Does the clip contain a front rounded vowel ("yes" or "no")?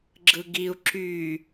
yes